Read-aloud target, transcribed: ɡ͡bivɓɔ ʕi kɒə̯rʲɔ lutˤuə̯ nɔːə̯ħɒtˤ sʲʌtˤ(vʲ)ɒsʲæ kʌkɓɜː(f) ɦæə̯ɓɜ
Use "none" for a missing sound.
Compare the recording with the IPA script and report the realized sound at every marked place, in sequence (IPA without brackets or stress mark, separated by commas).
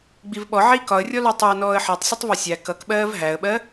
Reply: v, v